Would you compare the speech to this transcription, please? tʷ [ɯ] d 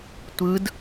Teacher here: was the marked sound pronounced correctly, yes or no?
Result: yes